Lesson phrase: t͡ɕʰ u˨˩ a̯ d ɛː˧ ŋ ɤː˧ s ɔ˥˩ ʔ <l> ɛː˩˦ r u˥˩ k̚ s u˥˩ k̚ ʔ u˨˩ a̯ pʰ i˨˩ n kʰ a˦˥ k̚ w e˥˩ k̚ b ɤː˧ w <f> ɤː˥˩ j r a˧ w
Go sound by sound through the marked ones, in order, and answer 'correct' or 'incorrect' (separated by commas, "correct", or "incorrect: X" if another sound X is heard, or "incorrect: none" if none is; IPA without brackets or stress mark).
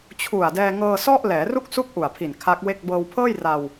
correct, incorrect: pʰ